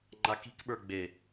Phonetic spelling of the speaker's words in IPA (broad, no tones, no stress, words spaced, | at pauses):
ŋ͡ǃaki̤kɓə˞ ɡ͡be